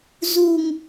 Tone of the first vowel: low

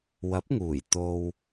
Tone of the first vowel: rising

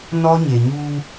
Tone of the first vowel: high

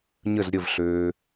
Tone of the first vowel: falling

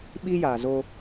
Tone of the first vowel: high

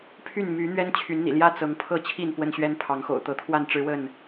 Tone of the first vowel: falling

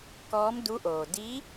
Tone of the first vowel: rising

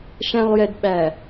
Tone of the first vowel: low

